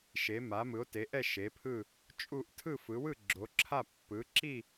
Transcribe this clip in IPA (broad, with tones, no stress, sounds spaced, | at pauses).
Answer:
ʃ e˨˦ m a˨˦ m ɯ˨˦ o̯ t e˨˦ ʔ ɛ˥˧ ʃ e˨˦ pʰ ɯ˥˧ | t͡ʃʼ u˥˧ ʔ tʰ ɯ˥˧ f ɯ˨˦ w ɯ˥˧ ɡ͡ǁ o˨˦ ǁʰ a˥˧ pː ɯ˨˦ ǁ i˥˧